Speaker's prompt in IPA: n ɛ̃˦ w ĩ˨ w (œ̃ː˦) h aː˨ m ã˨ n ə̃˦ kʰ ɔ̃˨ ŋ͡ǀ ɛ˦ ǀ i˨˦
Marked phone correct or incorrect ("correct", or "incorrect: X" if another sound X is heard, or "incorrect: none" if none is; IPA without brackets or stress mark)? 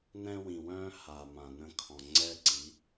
correct